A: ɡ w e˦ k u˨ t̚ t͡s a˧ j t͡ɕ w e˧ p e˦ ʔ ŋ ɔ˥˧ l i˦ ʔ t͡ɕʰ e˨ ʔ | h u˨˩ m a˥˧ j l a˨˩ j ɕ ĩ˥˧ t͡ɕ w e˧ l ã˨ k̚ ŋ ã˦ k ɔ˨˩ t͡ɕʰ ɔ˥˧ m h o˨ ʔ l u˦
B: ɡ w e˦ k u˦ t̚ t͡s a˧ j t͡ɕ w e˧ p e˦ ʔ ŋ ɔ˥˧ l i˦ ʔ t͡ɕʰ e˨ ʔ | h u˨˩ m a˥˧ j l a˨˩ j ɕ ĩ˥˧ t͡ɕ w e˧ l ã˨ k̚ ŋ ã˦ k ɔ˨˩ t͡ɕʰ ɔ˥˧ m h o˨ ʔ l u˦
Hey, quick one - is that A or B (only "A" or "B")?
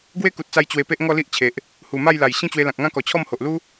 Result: A